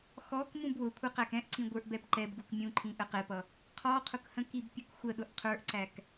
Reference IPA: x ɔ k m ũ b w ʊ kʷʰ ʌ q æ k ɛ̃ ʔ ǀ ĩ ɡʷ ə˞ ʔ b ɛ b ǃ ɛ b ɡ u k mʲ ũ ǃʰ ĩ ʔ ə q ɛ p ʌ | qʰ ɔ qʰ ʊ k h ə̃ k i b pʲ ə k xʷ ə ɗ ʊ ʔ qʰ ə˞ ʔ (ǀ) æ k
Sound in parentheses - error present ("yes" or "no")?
no